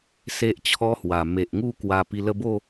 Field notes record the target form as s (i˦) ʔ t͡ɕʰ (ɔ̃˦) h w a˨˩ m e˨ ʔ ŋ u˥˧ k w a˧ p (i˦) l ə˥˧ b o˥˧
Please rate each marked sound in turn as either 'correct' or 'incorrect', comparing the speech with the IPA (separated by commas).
incorrect, incorrect, incorrect